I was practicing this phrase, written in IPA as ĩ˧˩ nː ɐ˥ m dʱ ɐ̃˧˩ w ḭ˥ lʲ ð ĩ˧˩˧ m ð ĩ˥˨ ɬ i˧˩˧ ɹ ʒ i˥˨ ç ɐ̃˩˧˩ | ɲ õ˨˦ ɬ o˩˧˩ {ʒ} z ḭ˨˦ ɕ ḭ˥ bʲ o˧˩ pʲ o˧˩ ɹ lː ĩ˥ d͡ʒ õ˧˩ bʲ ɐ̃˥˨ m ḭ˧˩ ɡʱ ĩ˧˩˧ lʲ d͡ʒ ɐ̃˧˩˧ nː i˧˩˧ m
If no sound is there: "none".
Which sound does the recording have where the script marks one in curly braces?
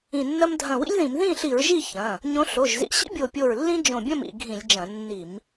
ʒ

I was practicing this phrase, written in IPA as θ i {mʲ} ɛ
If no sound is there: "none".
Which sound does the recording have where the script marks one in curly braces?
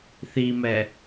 m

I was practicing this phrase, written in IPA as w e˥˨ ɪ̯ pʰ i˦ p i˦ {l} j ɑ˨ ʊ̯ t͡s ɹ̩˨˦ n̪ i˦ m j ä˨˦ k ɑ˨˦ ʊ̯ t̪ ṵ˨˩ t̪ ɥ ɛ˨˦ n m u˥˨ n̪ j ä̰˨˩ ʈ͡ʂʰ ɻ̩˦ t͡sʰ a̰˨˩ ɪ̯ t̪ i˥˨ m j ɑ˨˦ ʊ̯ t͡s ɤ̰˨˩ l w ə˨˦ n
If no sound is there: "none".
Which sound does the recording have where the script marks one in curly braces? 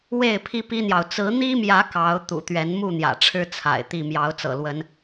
n̪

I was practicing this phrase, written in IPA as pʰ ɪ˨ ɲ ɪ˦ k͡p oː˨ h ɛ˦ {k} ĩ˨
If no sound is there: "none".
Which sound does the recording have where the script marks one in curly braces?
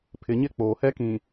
k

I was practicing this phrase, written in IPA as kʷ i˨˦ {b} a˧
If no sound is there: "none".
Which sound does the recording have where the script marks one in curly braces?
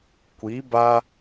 b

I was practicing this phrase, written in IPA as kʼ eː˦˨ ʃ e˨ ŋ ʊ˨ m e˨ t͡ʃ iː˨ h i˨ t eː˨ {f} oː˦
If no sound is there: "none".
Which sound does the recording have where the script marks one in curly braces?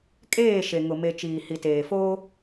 f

